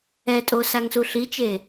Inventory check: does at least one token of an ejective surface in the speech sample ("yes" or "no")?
yes